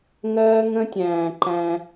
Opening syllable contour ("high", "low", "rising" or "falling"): high